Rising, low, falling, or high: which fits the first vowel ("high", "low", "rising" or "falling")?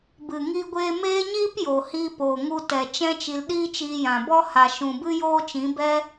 low